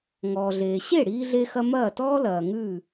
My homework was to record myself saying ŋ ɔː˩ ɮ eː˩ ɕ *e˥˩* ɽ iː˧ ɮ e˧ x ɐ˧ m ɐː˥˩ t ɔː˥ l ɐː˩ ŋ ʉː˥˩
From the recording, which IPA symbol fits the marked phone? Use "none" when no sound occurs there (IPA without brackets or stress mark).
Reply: e˥˩